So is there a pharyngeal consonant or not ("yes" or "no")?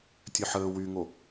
yes